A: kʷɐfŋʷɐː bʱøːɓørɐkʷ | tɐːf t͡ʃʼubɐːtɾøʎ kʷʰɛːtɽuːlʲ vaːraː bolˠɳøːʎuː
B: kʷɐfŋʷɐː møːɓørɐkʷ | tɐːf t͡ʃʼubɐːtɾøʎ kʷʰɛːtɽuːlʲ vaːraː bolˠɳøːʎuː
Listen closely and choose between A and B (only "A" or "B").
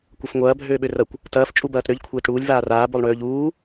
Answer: A